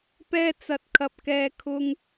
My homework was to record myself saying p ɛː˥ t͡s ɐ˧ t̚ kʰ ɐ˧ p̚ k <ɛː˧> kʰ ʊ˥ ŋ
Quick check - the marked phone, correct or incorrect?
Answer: correct